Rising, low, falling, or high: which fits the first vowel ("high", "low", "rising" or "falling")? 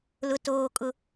high